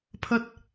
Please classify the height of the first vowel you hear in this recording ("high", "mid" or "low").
low